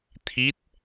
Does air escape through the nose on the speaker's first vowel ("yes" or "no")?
no